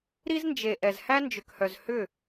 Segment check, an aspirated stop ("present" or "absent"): absent